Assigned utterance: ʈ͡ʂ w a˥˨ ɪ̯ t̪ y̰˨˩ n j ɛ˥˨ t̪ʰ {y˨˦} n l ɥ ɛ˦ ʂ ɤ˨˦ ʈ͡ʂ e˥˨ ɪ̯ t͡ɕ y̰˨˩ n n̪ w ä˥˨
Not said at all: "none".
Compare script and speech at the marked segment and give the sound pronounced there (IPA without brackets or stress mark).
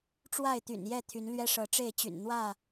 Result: y˨˦